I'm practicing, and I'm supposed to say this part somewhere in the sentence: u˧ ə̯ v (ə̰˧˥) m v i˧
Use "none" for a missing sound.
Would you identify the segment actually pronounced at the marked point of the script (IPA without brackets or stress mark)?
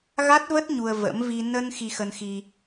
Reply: ə̰˧˥